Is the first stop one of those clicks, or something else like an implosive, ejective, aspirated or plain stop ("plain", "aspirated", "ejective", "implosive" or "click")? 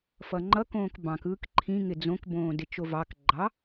click